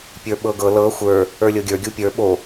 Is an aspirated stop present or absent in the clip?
absent